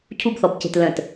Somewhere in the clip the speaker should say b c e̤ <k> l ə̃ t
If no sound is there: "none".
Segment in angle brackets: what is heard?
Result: t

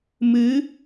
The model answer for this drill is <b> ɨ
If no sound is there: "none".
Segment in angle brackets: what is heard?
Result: m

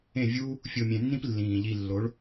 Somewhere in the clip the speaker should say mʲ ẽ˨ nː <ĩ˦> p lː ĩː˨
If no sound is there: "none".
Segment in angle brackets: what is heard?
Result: ĩ˦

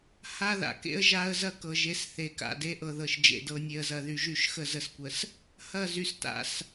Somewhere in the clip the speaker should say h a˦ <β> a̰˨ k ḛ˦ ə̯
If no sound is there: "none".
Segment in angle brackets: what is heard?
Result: ð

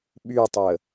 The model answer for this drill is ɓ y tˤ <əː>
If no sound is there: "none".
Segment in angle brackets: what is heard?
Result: əː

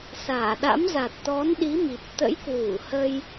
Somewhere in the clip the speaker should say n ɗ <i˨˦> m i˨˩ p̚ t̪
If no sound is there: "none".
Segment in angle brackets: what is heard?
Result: i˨˦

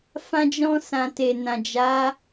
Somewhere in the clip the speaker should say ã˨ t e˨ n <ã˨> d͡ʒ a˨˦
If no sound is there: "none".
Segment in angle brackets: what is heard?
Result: ã˨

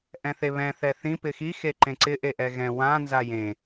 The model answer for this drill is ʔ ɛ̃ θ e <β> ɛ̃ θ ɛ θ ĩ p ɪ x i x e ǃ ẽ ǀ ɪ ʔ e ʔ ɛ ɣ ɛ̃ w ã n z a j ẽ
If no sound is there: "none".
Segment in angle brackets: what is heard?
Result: β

